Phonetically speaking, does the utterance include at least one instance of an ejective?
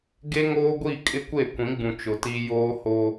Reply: yes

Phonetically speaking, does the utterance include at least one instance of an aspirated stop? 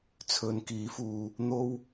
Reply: yes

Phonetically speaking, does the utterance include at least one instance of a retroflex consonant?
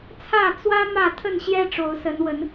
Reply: yes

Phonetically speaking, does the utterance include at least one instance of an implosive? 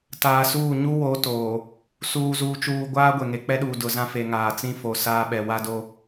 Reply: yes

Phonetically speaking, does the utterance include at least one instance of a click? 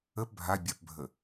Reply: no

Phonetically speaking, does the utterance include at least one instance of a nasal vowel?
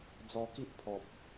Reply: no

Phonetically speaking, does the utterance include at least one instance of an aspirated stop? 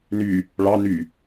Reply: no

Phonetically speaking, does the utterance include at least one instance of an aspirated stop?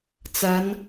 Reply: no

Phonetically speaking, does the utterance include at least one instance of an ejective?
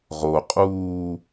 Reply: yes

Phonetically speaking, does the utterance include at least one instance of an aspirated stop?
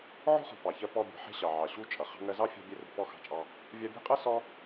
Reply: no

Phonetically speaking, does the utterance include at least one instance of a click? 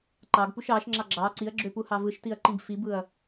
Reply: yes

